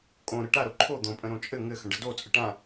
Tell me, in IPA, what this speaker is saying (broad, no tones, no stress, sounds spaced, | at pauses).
kʼ õ ɾ ə ʈ a ɾ o ǃʰ o d̪ õ pʼ ə̃ ɾ õ t͡ʃʼ ɘ ŋ ɘ x ə̃ ɖ ə d o t͡sʼ ə ʈ ã